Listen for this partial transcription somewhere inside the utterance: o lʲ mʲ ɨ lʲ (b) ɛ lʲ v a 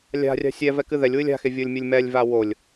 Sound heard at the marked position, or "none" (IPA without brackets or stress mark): m